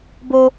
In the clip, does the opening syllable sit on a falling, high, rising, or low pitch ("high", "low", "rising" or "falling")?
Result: high